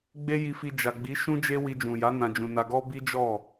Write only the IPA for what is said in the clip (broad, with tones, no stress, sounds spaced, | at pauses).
ɡ͡b e˧ j i˨ f i˨ d͡ʒ a˨ ɡ͡b i˨˦ ʃ ũ˦ d͡ʒ e˦ w i˧ d͡ʒ ũ˨ j a˨˦ n ã˧ d͡ʒ ũ˧ n a˧ ɡ ɔ˦ b i˦ d͡ʒ ɔ˦˨